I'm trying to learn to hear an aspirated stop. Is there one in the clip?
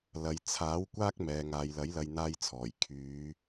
yes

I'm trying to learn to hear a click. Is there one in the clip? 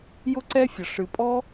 yes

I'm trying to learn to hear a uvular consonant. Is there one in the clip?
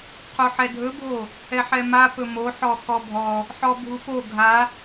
yes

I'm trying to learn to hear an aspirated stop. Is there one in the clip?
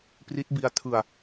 yes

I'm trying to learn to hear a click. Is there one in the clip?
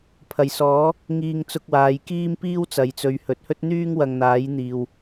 no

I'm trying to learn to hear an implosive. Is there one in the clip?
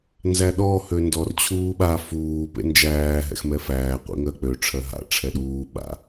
yes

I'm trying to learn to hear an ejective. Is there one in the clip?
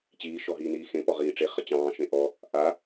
no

